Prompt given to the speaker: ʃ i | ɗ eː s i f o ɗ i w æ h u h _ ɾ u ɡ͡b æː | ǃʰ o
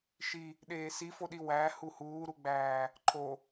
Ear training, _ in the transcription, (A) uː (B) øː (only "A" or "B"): A